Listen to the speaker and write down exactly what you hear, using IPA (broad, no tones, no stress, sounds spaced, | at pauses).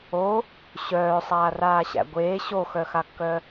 o | ɕ œː sˤ aː r aː ɕ æ̰ ɡʷ eː ɕ o x œ x a kː œ